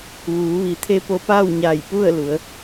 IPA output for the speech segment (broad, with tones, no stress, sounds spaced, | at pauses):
ʋ uː˩˧ ʋ i˩˧ t̪ʰ e˧˥ p o˧ p aː˥˨ w ɲ a˧˩ j p u˥˨ ə̯ l u˩˧ ə̯